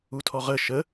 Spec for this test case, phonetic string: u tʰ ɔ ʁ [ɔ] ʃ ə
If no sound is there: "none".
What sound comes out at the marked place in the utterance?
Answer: ə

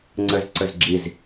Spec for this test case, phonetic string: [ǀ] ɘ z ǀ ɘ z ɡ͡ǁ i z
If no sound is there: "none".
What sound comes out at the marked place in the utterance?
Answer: ŋ͡ǀ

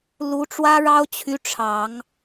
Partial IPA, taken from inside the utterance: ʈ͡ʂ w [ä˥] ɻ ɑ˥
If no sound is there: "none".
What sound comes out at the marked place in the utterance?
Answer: ä˥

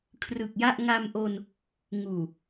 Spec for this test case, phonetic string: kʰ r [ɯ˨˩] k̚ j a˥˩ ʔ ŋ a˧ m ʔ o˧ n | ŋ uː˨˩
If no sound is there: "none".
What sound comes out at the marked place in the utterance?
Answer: ɯ˨˩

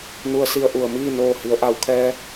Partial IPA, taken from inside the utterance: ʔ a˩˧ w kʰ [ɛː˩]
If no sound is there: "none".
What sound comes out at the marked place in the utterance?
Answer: ɛː˧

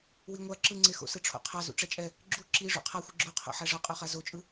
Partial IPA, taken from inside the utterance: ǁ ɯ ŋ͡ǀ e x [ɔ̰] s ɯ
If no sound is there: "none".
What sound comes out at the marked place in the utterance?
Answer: o̰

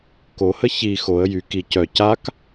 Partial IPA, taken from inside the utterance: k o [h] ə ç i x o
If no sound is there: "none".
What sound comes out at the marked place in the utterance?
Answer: h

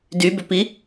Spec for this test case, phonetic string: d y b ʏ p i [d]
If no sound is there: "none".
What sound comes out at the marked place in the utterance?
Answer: none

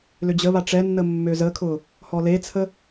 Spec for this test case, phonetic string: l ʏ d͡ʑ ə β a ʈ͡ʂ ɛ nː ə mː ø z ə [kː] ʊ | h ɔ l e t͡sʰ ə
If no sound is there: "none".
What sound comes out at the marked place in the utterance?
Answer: kʰ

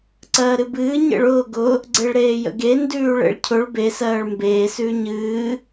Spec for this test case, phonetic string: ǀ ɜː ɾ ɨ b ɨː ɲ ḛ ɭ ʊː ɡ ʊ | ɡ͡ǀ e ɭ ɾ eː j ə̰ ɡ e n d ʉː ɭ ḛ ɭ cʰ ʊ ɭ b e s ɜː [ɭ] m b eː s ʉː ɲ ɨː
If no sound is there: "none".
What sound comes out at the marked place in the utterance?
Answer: ɭ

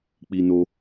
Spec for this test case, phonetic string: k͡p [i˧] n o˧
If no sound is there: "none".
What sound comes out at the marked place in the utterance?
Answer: i˧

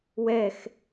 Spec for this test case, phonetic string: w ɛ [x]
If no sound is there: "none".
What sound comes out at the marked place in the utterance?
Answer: x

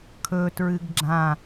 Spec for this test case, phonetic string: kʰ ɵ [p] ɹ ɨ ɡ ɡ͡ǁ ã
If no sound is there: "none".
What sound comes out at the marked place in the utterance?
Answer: t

